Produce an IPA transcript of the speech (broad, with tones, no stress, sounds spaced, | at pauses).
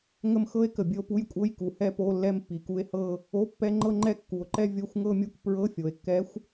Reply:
ŋ ə˥ m x ɤ˥ e̯ k ə˨˩ bʲ ə˥˧ o̯ p u˧˥˧ j kʷʼ ɤ˧˥˧ j k u˩˧ h ɛ˥ p o˧˥˧ lː ɛ˥˧ m pː i˩˧ k u˧˥ e̯ h ɤ˥˧ | o˧˥˧ pː ɛ˧˥˧ ŋ͡ǃ ɤ˥˧ ŋ͡ǃ ɛ˥˧ kː u˩˧ o̯ ǃ ɛ˥˧ vʲ o˧˥˧ xʷ ŋ ɤ˥˧ mʲ u˧˥˧ k p ɹ ɤ˧˥˧ fʲ o˩˧ e̯ kː ɛ˧˥ xʷ